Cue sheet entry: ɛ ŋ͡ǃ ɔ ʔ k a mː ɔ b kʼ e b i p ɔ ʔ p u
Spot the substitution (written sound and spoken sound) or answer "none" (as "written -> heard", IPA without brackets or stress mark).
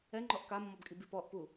e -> i